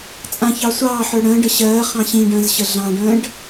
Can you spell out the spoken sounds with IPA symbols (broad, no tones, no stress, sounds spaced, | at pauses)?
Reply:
t͡sʼ ã ç ɑ sʷ ɑː ħ ə˞ ɽ ə̃ː ɖ ə ɕ ɜː χ ɑ̃ ɕ ĩ ɖ ə̃ː z ɕ ə ɮ ɑ̃ ɖ ə̃ː ɖ